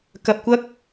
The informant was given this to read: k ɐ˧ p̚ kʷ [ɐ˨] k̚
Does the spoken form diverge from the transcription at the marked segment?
yes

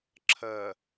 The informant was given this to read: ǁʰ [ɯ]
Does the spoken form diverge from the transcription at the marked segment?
yes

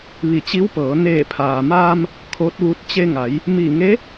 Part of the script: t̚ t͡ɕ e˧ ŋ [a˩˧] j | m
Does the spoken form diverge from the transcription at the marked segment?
no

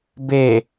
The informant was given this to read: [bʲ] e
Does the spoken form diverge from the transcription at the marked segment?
yes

